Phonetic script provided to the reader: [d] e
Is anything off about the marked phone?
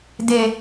no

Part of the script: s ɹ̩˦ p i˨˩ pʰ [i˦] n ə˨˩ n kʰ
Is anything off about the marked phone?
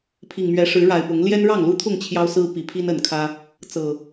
no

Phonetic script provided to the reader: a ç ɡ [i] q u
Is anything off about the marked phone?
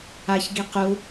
no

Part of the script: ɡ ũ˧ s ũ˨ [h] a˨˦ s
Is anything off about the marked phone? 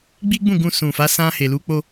yes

